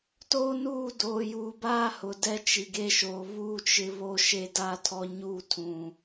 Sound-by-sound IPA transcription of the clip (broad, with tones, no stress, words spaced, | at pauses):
to˦nuː˦˨ doː˨juː˨baː˦hʊ˨ dɛ˦t͡ʃi˨ɡe˦ʃoː˨ βuː˦t͡ʃɪ˦ βo˦ʃe˦daː˦tʰɔ˦ ɲuː˦˨tʰũ˨